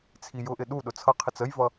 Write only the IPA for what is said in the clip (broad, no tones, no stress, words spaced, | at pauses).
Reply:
t͡sʰijʊʔɪ ɗuɗʊ t͡sʰʌqʰɪt͡s əjvʌ